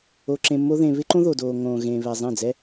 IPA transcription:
o˧ǁẽ˧mːo˦ðẽ˧ βɪ˦ǃõ˦ ðo˨doː˨ ŋõː˨ɣẽː˨βɛ˨ zˤẽ˦˨d͡zɛ˦

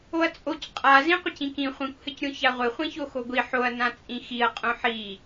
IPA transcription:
oɐ̯t͡sʼoc qʼazĩ qʷɘcĩkĩ χʷĩkʷhɘcɾʲõ çaʁʷɘχʷĩço xoɡʷi ħoɐ̯ nãt͡sʼĩxiɐ̯ qʼõħi

